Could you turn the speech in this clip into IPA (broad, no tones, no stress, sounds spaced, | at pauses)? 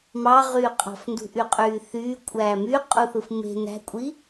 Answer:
m ɑ ʁ yː qʼ ɑ̤ f n d ṳ ʔ y qʼ yː θ yː kʷʼ æː m y qʼ u θ ɯ f m e̤ n æ̤ kʷʼ i